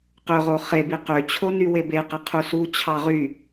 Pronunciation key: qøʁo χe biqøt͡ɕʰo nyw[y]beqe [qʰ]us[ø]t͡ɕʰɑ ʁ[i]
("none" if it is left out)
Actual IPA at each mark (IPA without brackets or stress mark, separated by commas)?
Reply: e, qʰ, u, y